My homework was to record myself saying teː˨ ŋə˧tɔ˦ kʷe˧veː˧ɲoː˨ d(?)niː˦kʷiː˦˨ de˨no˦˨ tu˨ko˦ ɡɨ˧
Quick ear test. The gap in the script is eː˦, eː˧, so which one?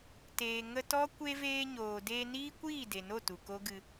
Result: eː˧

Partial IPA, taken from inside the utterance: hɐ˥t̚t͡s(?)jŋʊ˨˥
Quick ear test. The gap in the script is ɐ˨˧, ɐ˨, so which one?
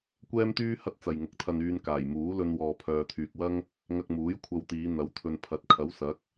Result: ɐ˨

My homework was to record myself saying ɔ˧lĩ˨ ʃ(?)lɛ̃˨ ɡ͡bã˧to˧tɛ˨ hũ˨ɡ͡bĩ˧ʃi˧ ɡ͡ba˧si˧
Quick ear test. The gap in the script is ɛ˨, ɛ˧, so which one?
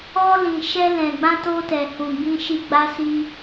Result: ɛ˧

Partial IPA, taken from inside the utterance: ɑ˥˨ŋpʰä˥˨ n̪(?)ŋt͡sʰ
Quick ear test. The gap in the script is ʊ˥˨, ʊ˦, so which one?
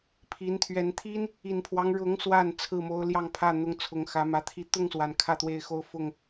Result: ʊ˦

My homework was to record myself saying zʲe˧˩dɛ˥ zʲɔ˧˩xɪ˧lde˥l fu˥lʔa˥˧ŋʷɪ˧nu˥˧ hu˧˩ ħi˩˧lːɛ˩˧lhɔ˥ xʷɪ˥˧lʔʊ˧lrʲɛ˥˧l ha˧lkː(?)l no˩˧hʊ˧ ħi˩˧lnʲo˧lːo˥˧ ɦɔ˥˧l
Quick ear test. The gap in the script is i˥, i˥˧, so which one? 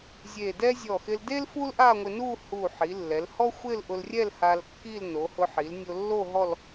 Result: i˥˧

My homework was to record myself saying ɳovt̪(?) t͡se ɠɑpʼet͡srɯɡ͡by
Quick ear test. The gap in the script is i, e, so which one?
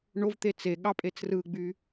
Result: e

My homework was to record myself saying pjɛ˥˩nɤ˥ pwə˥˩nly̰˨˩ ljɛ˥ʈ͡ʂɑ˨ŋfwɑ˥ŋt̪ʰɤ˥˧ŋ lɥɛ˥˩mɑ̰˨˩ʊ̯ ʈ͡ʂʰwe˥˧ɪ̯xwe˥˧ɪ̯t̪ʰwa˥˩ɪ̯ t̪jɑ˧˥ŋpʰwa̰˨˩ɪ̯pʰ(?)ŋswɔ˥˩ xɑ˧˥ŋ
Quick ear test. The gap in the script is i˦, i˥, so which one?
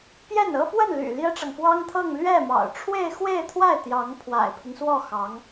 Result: i˦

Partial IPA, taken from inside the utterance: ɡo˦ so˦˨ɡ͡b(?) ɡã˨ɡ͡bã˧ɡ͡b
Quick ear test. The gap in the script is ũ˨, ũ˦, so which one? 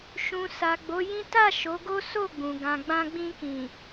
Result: ũ˨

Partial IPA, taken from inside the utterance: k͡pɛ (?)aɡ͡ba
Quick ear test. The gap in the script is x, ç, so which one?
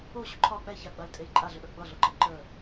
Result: ç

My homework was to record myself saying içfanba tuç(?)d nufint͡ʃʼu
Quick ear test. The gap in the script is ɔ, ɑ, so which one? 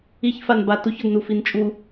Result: ɔ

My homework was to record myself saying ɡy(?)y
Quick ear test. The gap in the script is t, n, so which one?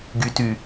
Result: t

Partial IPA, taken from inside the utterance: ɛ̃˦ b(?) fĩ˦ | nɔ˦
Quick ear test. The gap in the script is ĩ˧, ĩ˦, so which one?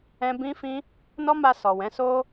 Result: ĩ˦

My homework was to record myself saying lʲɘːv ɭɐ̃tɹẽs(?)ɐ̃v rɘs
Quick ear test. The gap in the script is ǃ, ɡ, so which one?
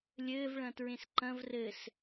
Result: ǃ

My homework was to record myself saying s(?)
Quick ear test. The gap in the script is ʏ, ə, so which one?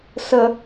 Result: ə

